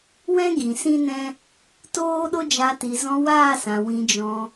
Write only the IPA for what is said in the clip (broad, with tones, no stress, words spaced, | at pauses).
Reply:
wɛ̃˦ ɡĩ˨sĩ˦nɛ̃˦ | toː˦ɗo˦d͡ʒa˧ ti˨zɔ̃˧waː˦˨sã˨ wĩ˧d͡ʒɔ̃˧